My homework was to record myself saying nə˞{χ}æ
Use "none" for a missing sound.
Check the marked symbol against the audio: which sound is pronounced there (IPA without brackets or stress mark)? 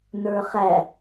χ